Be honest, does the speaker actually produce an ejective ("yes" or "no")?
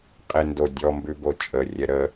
yes